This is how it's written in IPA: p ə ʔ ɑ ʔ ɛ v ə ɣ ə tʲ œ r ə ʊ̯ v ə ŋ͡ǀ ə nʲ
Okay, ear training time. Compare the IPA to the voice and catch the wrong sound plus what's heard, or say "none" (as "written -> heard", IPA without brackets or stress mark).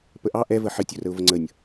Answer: ɣ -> ħ